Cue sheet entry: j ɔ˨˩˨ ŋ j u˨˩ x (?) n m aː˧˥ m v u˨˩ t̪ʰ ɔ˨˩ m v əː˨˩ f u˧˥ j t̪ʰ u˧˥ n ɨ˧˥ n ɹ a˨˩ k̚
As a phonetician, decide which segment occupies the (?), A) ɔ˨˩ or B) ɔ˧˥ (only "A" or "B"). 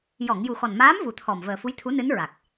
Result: A